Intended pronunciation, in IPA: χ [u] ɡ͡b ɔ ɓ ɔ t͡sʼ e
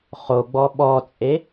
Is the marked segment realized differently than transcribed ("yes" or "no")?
yes